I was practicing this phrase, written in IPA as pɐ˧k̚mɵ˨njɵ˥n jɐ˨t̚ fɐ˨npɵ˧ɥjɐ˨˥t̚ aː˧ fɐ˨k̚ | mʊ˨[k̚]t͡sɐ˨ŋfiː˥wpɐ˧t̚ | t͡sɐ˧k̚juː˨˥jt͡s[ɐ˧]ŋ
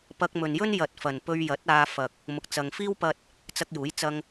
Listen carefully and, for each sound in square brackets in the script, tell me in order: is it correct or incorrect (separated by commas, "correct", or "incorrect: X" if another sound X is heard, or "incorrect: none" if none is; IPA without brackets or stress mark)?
correct, correct